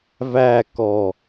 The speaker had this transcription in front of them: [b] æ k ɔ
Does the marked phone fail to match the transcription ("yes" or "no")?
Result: yes